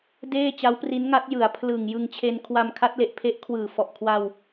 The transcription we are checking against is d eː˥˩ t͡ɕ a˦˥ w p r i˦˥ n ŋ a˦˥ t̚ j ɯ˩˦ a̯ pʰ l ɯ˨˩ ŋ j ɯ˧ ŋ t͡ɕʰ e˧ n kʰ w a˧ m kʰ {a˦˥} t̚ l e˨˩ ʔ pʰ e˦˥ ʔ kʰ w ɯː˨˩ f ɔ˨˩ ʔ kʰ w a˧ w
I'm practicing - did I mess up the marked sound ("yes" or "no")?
no